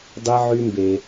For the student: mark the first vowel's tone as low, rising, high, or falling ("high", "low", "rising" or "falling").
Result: high